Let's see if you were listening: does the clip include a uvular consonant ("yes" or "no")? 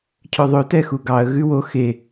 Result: no